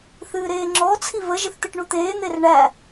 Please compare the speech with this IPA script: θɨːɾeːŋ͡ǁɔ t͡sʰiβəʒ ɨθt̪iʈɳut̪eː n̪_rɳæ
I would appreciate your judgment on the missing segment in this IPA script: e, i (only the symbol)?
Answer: e